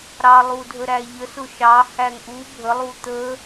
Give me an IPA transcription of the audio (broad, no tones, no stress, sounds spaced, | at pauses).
ɾ ɑ lˠ u dʱ ə ɾ æ ʎ ə s ʊ ʃ ɑ h æ ŋ ʔ u bʱ ə lˠ u t̪ ə